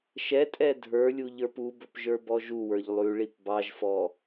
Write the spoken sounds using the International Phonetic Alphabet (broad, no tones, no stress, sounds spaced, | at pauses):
ʃ ɛ tʼ ɛ dʱ ə˞ lʲ u ʎ ə˞ p u b ɵ p ʒ ə˞ b ɔ ʒ u w ə˞ ʎ lˠ ʉ ɭ i p b ɑ ʒ f ɔ